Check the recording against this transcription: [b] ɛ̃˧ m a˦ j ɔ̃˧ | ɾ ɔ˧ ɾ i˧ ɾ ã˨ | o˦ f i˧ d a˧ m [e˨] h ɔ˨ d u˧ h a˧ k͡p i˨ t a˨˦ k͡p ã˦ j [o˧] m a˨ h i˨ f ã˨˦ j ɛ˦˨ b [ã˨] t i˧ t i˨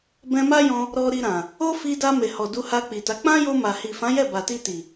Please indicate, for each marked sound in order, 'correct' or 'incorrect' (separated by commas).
correct, correct, correct, incorrect